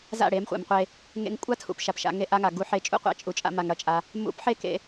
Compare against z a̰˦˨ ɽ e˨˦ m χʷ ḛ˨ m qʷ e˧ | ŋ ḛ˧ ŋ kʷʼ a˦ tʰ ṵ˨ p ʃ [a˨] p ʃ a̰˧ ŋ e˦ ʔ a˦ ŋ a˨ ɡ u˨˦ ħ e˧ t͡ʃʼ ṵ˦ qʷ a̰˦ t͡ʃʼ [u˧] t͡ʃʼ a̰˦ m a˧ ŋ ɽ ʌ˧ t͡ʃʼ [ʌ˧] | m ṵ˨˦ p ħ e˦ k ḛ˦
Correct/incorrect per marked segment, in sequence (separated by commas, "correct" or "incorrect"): correct, correct, incorrect